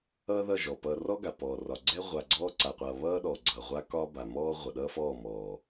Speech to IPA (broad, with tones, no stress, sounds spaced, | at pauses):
ʌː˦ ð ʌ˦˨ ʒ ɔ˨ p ʌː˨ r ɔ˦ ɡ a˨ p ɔː˨ r ɒ˨ ɡ͡ǀ ɛ˦ ʁʷ a˨ ɡ͡ǀ ɔː˦ ǀ a˨ qʷ ʌː˨ β ʌː˦ ɗ ɔ˨ ɡ͡ǀ ʌː˨ ʁʷ a˦ k ɒ˦ b a˨ m ɔː˦ ʁʷ ʌ˨ ɗ ʌː˦ f ɔː˦˨ m ɔː˨